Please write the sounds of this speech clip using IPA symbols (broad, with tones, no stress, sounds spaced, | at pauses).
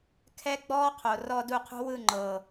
kʰ ɛ˦ ɡ͡b ɔː˦ qʰ o˨ r ɔ˧ d u˦˨ qʰ ṳ˦ w ɯ˦˨ ŋ͡ǃ ɤː˨